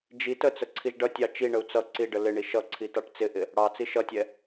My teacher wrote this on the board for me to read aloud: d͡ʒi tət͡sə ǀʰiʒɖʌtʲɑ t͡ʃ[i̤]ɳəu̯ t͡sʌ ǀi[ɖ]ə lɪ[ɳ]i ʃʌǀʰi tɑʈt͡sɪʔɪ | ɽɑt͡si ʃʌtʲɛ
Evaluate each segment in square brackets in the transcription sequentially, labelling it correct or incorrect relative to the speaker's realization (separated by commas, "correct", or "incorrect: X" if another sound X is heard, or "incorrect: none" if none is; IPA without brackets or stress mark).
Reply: incorrect: i, correct, correct